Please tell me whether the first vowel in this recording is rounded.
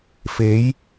no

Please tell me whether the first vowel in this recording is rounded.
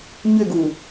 yes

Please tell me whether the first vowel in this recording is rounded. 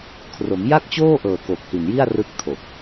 yes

